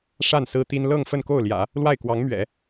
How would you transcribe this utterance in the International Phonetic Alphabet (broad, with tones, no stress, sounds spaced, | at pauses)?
ʂ a˥˩ n s ɹ̩˥ t̪ i˥ n l ɤ˥˧ ŋ f ə˥˧ n k o˥˩ ʊ̯ l j ä̰˨˩˦ | l w a˥˩ ɪ̯ k w ɑ˧˥ ŋ m ɥ ɛ̰˨˩˦